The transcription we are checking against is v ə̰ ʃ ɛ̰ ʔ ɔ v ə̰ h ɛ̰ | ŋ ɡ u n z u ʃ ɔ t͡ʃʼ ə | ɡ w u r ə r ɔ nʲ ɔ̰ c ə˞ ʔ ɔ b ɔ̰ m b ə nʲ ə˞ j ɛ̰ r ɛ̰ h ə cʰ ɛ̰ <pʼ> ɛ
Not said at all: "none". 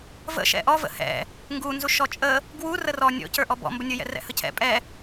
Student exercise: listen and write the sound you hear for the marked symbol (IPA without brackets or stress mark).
pʼ